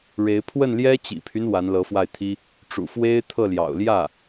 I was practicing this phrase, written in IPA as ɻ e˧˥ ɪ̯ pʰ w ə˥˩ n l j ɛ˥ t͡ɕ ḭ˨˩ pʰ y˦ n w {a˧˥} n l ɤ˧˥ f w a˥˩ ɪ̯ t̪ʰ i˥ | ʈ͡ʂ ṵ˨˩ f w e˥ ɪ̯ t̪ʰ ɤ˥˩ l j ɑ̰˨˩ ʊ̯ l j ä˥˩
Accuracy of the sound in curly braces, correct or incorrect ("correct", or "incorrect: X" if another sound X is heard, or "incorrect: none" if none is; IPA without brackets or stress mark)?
correct